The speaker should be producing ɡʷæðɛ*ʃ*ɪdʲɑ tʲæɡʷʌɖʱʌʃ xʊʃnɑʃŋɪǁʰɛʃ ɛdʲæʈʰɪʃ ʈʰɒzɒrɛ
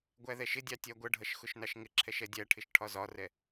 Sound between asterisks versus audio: correct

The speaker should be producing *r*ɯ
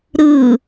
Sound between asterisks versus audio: incorrect: ɾ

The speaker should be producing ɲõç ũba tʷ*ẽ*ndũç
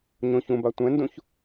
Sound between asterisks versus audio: incorrect: ɛ̃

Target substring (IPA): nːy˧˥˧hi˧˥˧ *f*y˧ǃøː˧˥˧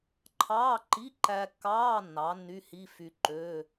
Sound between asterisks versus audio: correct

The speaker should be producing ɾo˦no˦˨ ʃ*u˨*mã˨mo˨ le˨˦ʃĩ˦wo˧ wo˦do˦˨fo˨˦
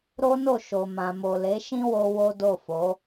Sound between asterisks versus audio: incorrect: o˨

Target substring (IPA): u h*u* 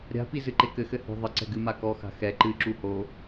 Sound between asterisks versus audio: incorrect: o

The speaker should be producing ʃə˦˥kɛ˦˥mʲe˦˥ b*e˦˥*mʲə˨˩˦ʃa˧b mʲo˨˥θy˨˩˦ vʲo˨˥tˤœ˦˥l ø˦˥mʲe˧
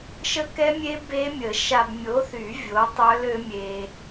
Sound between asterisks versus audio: correct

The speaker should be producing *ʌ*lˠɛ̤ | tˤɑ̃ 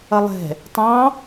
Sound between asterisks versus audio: correct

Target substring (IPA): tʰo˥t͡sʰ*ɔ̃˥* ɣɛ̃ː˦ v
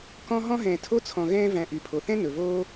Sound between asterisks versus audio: incorrect: ɔ̃˨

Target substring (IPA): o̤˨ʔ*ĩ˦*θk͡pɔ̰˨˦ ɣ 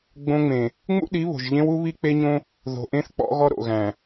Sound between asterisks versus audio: incorrect: ẽ˦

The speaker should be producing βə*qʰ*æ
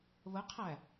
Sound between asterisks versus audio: correct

